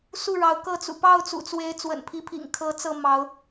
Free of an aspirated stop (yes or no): no